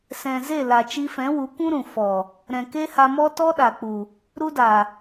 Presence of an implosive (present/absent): present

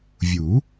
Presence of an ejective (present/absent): absent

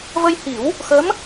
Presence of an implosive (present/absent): absent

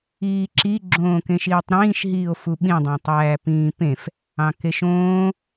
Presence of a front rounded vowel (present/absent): absent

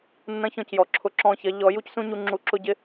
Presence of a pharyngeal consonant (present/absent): absent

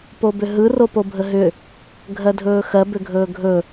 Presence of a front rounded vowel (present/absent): present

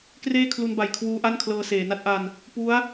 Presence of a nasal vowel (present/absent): absent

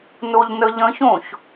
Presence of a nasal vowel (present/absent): present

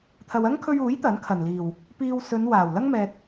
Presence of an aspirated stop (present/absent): present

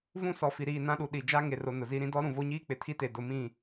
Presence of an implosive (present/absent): present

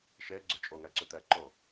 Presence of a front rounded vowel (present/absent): present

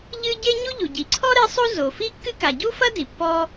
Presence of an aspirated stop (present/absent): present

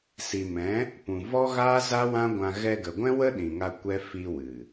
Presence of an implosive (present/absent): present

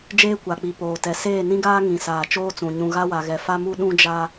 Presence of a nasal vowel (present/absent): present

